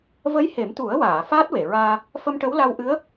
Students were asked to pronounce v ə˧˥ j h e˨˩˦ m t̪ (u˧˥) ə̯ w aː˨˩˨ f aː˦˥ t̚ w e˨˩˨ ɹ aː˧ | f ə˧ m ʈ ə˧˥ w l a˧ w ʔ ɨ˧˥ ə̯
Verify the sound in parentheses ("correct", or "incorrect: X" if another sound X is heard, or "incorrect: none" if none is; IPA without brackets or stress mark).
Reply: incorrect: u˨˩˦